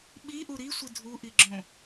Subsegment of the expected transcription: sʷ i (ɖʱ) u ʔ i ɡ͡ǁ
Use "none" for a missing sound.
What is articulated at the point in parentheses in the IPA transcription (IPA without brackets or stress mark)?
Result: dʱ